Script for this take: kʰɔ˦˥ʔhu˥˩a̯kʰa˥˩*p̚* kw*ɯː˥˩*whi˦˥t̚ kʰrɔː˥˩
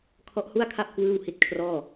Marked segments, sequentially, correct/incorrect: correct, correct

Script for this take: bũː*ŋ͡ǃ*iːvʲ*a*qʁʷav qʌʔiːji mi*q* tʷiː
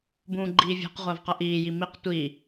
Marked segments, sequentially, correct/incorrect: incorrect, incorrect, correct

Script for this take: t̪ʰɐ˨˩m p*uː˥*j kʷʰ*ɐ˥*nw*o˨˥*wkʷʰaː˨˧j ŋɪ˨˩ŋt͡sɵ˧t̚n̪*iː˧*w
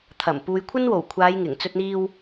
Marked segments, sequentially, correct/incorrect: incorrect, correct, incorrect, correct

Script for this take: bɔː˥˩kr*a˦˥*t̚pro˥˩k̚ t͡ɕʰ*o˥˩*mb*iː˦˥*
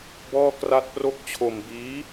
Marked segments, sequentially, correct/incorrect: incorrect, incorrect, correct

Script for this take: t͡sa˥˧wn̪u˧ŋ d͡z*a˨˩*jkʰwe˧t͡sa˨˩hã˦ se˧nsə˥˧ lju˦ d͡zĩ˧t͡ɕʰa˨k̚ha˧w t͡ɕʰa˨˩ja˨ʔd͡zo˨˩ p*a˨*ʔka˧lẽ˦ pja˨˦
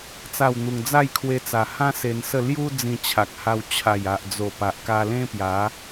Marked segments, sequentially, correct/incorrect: incorrect, correct

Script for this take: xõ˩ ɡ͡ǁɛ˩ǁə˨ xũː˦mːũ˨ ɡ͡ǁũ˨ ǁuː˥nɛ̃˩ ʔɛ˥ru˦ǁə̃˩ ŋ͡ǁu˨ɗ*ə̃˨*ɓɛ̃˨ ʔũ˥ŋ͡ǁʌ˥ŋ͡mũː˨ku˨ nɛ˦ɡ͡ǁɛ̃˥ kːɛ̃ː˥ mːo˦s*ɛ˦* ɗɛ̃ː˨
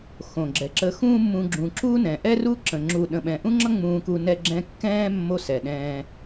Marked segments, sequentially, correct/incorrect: correct, incorrect

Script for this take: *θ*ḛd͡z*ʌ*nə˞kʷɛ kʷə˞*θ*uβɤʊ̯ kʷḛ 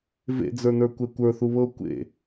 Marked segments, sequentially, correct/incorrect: incorrect, incorrect, correct

